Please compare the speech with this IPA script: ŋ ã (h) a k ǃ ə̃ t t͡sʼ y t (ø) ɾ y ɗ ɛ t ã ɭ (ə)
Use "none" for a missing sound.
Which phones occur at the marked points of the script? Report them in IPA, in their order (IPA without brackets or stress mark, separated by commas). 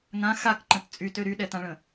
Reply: x, ø, ə̃